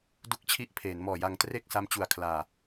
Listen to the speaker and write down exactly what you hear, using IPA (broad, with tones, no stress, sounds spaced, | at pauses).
d u˦˥ k̚ t͡ɕʰ i˦˥ ʔ pʰ eː˩˦ n m ɔː˨˩ j a˧ ŋ t r e˥˩ k̚ s a˦˥ m t͡ɕ u˨˩ a̯ kʰ l aː˨˩